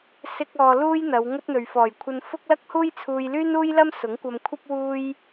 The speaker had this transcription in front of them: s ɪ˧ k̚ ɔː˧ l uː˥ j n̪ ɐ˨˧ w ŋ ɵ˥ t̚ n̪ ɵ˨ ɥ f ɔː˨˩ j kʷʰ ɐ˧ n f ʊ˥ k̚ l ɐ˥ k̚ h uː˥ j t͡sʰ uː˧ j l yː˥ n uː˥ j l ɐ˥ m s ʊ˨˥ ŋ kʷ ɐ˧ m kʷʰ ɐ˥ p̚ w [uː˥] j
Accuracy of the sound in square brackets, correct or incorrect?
correct